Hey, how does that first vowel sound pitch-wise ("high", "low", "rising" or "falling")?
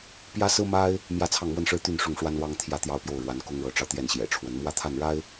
high